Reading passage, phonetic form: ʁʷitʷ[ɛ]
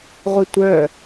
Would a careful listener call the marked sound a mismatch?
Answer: yes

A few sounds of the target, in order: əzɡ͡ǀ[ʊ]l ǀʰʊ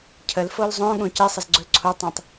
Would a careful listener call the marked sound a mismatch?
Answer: no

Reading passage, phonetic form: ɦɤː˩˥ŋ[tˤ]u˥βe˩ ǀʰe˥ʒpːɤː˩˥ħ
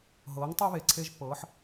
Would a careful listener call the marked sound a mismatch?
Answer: no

